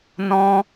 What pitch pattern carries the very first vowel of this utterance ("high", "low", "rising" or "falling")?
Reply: high